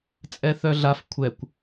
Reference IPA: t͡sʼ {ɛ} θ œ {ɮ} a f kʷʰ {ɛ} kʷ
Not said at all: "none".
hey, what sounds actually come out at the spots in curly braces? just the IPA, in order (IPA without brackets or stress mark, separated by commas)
ɛ, ɮ, ɛ